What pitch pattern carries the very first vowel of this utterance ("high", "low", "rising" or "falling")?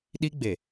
high